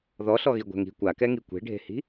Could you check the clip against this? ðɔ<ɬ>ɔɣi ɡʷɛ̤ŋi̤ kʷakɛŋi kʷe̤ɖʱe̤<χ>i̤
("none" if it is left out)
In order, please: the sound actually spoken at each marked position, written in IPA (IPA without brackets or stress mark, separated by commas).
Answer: ɬ, h